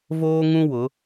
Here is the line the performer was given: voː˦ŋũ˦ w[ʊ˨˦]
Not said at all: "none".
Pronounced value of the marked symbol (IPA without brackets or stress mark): ʊ˨˦